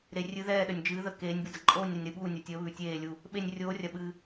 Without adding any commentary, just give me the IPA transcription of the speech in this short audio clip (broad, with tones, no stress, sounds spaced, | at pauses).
ɾ e˧ rʲ ɨ˧˥ ð ɛː˥˧ ɗ ə˧ nʲ d͡ʒ ɨː˧˥ ð ə˧˥ k eː˧˥ nʲ b ɨ˧ d ɐ˧ ǃʼ oː˥˧ nʲ ɾ ɐ˧ nʲ ɾ ɨ˧ ɓ uː˥˧ nʲ ɐ˧˥ tʲ əː˧˥ β ʉ˧ tʲ eː˥˧ lʲ u˥˧ | ɓ e˥˧ nʲ rʲ oː˧˥ rʲ ɐ˧ ɓ ɨː˧